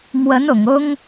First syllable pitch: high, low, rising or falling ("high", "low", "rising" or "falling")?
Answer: rising